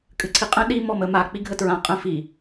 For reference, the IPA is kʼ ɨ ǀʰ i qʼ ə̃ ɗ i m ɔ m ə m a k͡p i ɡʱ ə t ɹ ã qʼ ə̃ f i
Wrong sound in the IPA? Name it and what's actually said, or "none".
none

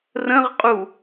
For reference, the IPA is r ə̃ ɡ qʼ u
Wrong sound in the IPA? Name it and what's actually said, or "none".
ɡ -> ʁ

